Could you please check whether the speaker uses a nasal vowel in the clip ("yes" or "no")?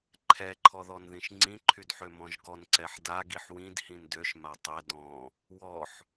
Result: yes